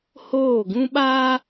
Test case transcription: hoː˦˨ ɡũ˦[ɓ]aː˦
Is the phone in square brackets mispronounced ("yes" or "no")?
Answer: no